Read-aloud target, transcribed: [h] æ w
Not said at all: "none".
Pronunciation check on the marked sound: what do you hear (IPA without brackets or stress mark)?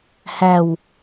h